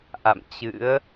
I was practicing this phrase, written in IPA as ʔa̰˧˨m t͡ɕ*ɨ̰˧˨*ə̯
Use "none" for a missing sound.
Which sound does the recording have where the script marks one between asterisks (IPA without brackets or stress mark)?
ɨ̰˧˥